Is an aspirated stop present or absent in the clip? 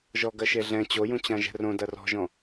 absent